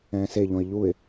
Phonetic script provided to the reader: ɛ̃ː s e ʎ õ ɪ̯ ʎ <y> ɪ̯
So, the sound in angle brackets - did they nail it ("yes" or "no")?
no